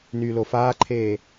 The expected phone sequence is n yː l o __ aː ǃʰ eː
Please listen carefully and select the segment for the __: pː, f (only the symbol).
f